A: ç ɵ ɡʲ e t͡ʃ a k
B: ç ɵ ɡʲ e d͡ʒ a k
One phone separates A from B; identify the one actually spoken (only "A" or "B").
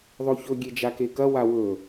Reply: B